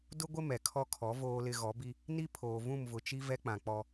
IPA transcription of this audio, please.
d ʊ˦ ɡʷ ɪ˦ m ɛ˨ kʰ ɔ˦ kʰ ɔ˨˦ v oː˨ l ɪ˨ ɣ ɔ˨˦ b i˦ | n i˦ pʰ oː˨ v ũ˦˨ m v ʊ˨ t͡ʃ i˦ v ɛ˦ k͡p ã˨ k͡p ɔ˦

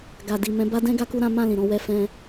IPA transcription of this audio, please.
ɡ a˨ d i˨ m ɛ̃˨˦ b a˦ d ɛ̃˦ ɡ a˦ k u˦ ɾ ã˦ m ã˦˨ l ĩ˨ ɾ ɔ̃˧ w ɛ˧ f ɛ̃˧

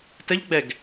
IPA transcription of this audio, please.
t ə ʎ ɡ͡b ɛ ɡ

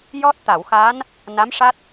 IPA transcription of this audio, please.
j ɔ˦˥ t̚ t̪ a˨˩˨ w x a˧˥ n | n a˧˥ m ʂ a˦˥ t̚

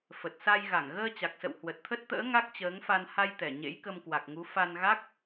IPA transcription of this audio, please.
f ə˨˩ t̚ s a˧ j ɣ a˧˩ ŋ ɣ əː˧ t͡ɕ a˨˩ k̚ s ə̰˧˨ w h w ə˨˩ t̚ t̪ʰ ə˦˥ t̚ t̪ ə̰ː˧˥ ŋ a˦˥ k̚ t͡ɕ əː˨˦ ŋ f a˧ n h a˧ j t̪ ɛ˧˩ ɲ ḛ˧˥ j k ə˧ m k w a˨˩ k̚ ŋ u˨˦ f a˧ n ɣ a˦˥ k̚

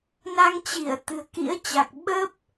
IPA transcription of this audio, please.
n a˧ ŋ t͡ɕ i˧˩ ə̯ t̪ ɨ̤˨˩ ə̯ k ḭ˧˥ ə̯ t͡ɕ a˨˩ k̚ ɓ əː˦˥ p̚

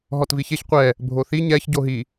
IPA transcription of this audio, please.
ɦ ɔ t v i ç e ç qʷ ɛ | bʱ o θ i ɲ ɛ ç ɟ o ɦ i

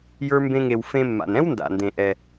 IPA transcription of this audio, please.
j ə˞˧ m b ẽ˧ ŋ e˩ w f ẽ˧ mː a̰˩ n ɛ̃˥ w n d a̰˩ n d ẽ˩ ʔ ɛ˩

